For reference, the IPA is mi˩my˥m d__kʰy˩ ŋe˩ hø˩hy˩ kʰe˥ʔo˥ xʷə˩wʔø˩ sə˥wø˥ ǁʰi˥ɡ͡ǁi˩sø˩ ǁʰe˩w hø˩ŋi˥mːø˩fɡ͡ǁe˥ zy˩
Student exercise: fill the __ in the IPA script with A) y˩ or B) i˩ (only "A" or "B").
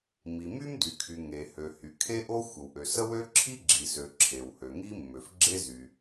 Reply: A